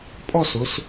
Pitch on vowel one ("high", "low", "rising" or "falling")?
falling